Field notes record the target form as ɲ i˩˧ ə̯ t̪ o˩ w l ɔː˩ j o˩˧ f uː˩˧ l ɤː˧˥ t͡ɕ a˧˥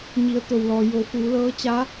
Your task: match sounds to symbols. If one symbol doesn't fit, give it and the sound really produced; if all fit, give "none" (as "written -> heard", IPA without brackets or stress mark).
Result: none